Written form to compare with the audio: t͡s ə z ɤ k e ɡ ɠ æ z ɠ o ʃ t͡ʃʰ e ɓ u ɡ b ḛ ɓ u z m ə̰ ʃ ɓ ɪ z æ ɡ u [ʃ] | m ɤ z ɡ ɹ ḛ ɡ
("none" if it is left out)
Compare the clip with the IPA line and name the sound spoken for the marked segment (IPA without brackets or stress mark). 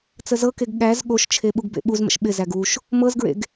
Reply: ʃ